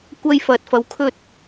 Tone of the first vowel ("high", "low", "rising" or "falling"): high